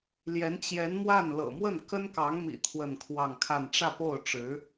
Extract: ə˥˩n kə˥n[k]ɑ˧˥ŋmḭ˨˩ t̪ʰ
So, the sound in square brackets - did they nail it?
yes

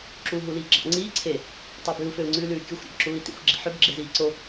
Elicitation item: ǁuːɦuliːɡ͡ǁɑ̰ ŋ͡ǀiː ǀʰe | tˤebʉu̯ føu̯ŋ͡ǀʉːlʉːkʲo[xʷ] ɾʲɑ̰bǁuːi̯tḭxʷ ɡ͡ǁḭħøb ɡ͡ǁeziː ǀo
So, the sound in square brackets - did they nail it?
yes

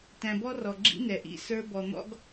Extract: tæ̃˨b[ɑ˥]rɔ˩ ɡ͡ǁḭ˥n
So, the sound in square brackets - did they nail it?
no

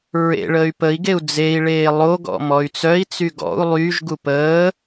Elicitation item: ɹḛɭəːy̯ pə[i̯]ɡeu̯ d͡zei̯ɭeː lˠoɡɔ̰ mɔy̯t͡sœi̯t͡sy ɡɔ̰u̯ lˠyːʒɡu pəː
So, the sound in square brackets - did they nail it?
yes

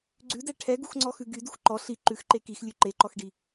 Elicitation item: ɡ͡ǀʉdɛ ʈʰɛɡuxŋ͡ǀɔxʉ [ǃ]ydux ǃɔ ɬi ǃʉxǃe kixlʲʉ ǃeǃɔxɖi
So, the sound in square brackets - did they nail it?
no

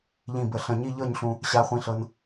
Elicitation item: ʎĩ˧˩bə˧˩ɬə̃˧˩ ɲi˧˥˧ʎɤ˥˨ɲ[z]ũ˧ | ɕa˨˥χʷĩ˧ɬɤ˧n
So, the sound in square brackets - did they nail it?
no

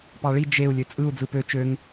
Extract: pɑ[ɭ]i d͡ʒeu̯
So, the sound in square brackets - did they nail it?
yes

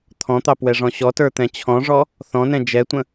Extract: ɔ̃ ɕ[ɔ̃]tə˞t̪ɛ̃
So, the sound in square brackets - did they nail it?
no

